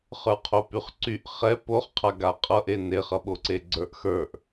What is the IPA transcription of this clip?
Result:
χ ə˞ qʰ o p y χ ǀ y ʔ χ ɛ p o χ qʰ a ɡ a qʼ ʌ ʔ e n e χ ʌ ɓ o ǀ e ɡ͡ǀ ə˞ ʔ x ə˞ ʔ

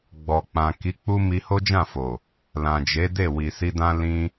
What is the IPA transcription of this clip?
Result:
ɡ͡b ɔ˨ k͡p ã˨ k i˨˦ k͡p u˦ m i˧ h o˦ d͡ʒ ã˦˨ f o˨ | l ã˨ d͡ʒ e˨˦ d e˦˨ w i˨ s i˧ d ã˦ l ĩ˦

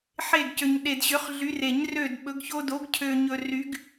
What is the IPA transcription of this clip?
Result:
ħ e˦˨ ɡ c ø˨ ɲ ɗ e˨ d ɕ ø˨˦ χ ɮ y˨˦ r e˨˩˦ ɲ r ø˦˨ d ɓ ɵ˨˦ ɡ ç o˦ d o˨˦ ɡ cʰ ø˨ ɲ ɵ˨ r y˨˦ ɡ

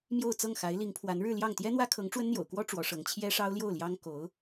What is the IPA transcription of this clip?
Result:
m j o˥˧ ʊ̯ t͡s ɤ˥˩ ŋ x a˧˥ ɪ̯ l i˧˥ ŋ pʰ w a˧˥ n ɻ ɻ̩˥˧ l j ɑ˥˩ ŋ t̪ j ɛ˥ n̪ w ä˥ kʰ ɤ˧˥ ŋ ʈ͡ʂ w ə˥ n n̪ j o̰˨˩ ʊ̯ k w ɔ˥ ʈ͡ʂ w ɔ˧˥ ʂ ɤ˧˥ ŋ t͡ɕʰ j ɛ˥ ʂ ɑ˥ ʊ̯ l j o˥˩ ʊ̯ l j ɑ˥ ŋ k o˧˥ ʊ̯

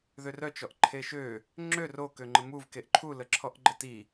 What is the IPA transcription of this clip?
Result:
ð ø r œ t͡ʃ ɔ ʔ ǃʰ e ʃ ø | ŋ͡ǁ ø r o k ø ŋ͡ǃ ə m u v k e ʔ ǃʰ u l ə ǁʰ ɔ ʔ ɡ͡ǃ ə t i

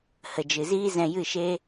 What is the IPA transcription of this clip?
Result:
h ə˨ d͡ʒ ɨ˨ z iː˦ z ɛ̃˧ j ɨ˦˨ ʃ e˦

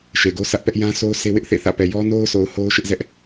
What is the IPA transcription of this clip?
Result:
ʃ e˨ ɡ o˦ s ä˦ ʔ p ɛ˦ ʔ j ã˦ sʰ o˦ ʊ̯ s e˦ w ɪ˦ ʔ θ ḛ˦˨ θ ä̰˦˨ p ɛ˨ j ɔ˦ n o˦ ʊ̯ sʰ o˨ ʊ̯ h o˦ ʊ̯ ʃ ɪ˦ ʔ z ɛ˦ ʔ

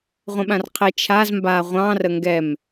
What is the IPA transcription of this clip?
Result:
ʁʷ ə̃ ɓ ã r qʰ e t͡ʃʰ a z m b a ʁʷ ɑ̃ r ə ŋ ɡ ɛ m

